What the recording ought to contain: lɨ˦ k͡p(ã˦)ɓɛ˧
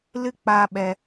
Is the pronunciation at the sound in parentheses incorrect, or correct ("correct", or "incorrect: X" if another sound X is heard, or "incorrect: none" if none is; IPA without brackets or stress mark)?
incorrect: a˦